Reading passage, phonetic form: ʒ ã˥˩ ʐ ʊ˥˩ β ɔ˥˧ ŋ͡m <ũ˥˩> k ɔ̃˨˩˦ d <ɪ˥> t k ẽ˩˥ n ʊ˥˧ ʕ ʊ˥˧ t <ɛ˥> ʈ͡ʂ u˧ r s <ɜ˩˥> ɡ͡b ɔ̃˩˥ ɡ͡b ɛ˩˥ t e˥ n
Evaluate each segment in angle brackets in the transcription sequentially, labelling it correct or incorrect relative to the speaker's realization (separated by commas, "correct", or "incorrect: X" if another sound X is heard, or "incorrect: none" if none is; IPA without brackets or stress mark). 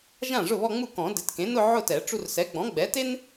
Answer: incorrect: u˥˩, incorrect: ɪ˩˥, incorrect: ɛ˨˩˦, incorrect: ɛ˩˥